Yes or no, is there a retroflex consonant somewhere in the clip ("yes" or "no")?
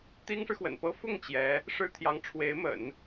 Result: yes